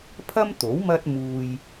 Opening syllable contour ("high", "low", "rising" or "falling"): high